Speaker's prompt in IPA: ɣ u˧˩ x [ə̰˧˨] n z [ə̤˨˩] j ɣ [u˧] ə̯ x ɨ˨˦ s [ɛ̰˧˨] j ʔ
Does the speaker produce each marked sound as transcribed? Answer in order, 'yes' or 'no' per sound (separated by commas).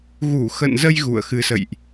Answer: yes, no, no, no